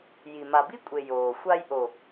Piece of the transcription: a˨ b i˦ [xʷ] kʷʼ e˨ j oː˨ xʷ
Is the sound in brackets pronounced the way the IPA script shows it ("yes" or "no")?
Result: no